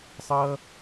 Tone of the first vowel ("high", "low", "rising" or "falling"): high